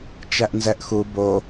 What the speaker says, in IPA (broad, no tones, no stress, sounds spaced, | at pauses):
t͡ʃ æ ʔ n z ɛ ʔ x u b o